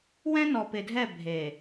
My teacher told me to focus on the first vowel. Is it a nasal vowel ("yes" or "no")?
yes